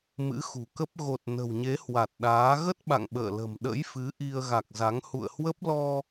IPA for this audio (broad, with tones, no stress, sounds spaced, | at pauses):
m ɨ̰˧˥ x ṳ˨˩ k ə˦˥ p̚ ɣ o˨˩ t̚ n ə̤˨˩ w ɲ e˨˦ h w a˨˩ t̚ ɗ aː˨˦ ɣ ə˦˥ t̚ ɓ a̰˧˨ ŋ ɓ ə̰ː˧˨ l ə̤˨˩ m ɗ ə̰˧˥ j f ɨ˨˦ ʔ i˧ ə̯ ɣ a˨˩ k̚ z a˨˦ ŋ h ṵ˧˨ ə̯ h w ə˦˥ p̚ l ɔ˧